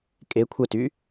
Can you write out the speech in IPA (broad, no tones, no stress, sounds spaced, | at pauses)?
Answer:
kʼ e kʷʰ ə t y